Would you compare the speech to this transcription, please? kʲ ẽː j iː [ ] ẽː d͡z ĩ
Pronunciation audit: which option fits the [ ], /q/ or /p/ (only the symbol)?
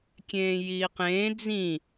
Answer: q